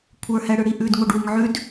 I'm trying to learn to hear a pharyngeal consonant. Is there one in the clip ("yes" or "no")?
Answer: yes